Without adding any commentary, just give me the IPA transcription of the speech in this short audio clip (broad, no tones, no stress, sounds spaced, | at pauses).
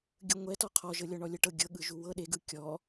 ɡʲ ɯ ŋʷ ɛ t ɔ qʰ ɔ ʒ ɤ lʲ ɔ ɳ ɔ lʲ ɤ ʈ ɤ ɡʲ ɤ ɠ ɯ ʒ u w ɤ ɗ e ɡ ɯ kʲ ɔ